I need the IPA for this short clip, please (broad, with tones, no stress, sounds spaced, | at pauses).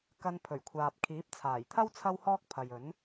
k ɐ˧ n pʰ ɵ˨˩ ɥ kʷʰ aː˨ p̚ kʰ iː˨˥ p̚ t͡sʰ aː˨˩ j t̪ʰ ɐ˥ w t͡sʰ ɐ˥ w h ɔː˥ k̚ pʰ ɐ˨ j ɵ˨˥ n